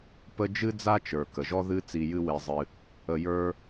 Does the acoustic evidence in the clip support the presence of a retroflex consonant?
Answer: no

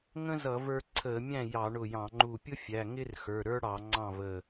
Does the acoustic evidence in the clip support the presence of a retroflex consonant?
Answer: yes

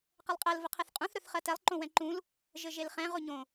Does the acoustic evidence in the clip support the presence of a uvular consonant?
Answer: yes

